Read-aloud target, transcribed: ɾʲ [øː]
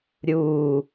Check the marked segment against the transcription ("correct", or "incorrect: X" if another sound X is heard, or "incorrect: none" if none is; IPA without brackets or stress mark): incorrect: uː